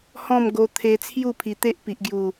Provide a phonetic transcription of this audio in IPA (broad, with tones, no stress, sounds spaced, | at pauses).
h ɔ̃˥˧ m ɡ o˧ t̪ʰ e˧ t͡sʰ j u˥˧ pʰ i˨˩ t̪ e˦ ʔ p i˨ ʔ ɡ j u˨˩